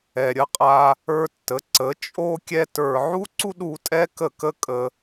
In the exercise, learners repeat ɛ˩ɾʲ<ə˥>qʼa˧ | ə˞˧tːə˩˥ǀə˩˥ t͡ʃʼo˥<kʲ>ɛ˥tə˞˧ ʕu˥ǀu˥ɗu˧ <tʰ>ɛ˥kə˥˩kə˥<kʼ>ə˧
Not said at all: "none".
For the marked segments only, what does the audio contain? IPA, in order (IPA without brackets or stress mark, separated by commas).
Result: ə˧, kʲ, tʼ, kʼ